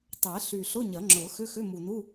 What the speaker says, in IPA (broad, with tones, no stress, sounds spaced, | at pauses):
tˤ ɛ˨˩˦ ɬ y˨˩ ɬ ʊ˧˥˧ ɲ ɐ˨˩˦ ŋ͡ǁ ʊ˨˩˦ x ʏ˧˥˧ x ʏ˧˥˧ m u˨˩ n u˧˥˧